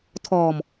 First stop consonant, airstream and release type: aspirated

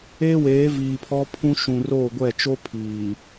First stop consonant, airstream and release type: aspirated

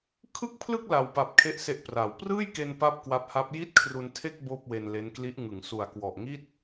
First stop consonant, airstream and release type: aspirated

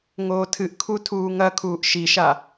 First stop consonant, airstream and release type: aspirated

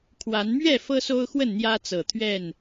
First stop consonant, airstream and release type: aspirated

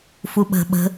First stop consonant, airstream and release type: implosive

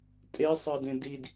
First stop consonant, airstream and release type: ejective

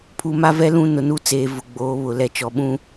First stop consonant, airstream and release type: aspirated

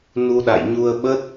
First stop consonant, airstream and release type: implosive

